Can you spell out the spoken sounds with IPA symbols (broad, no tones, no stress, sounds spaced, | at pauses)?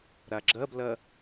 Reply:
ɾ a ɡ͡ǁ ɐ b l ɐ